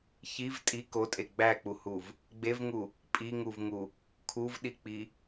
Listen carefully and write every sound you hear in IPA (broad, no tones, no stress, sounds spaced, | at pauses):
ç i v tʼ i k o tʼ e ɡ͡b æ k͡p u h u v | ɡ͡b e v ŋ u | pʼ i ŋ u v ŋ u | kʰ u v ɗ i k͡p i